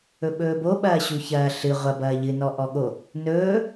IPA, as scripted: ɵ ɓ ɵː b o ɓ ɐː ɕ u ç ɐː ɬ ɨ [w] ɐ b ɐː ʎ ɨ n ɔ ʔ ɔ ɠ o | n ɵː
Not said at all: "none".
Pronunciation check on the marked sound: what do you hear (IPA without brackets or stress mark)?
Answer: ʁʷ